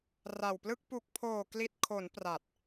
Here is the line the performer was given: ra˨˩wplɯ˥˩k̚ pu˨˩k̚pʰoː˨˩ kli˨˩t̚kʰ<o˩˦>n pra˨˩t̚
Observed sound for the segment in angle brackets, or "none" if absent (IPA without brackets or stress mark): o˩˦